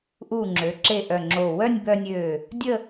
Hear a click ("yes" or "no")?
yes